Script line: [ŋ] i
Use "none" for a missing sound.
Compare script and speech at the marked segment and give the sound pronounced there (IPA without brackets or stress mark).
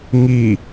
ŋ